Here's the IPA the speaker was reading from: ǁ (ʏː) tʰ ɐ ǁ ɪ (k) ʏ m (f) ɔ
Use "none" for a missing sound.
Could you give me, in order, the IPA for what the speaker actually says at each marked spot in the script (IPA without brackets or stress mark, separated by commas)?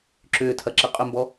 ʏː, qʼ, b